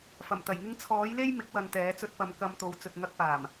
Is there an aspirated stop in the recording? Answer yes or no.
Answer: yes